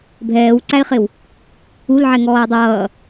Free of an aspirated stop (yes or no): yes